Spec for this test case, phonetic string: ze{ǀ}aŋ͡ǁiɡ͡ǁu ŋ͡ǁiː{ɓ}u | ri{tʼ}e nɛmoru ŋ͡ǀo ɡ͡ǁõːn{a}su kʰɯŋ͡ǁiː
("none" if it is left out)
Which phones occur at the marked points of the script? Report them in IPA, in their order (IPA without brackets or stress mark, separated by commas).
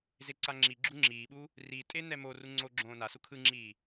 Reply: ǀ, ɓ, tʼ, a